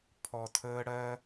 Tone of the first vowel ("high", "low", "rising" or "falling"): low